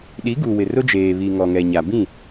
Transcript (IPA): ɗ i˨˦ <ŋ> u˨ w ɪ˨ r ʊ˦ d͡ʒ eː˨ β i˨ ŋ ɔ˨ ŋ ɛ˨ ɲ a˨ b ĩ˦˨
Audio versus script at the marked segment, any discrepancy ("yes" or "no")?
yes